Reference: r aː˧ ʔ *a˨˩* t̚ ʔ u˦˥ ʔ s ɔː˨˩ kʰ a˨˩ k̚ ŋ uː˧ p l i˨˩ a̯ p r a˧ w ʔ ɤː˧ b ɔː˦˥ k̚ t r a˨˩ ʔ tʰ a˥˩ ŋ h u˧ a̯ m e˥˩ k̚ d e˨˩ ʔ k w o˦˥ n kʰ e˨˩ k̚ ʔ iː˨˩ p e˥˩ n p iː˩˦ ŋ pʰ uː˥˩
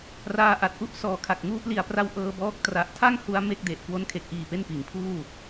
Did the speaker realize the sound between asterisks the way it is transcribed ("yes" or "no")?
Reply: yes